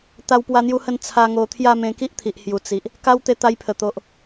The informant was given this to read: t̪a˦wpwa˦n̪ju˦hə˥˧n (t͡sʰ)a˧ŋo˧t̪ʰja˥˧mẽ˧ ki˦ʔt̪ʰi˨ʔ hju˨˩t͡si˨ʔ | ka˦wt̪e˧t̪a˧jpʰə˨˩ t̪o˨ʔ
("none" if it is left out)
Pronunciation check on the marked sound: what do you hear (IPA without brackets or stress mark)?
t͡sʰ